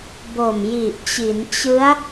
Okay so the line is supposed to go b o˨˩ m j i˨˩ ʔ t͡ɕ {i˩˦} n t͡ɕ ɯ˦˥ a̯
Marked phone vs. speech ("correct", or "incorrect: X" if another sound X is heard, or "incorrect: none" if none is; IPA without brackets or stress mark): correct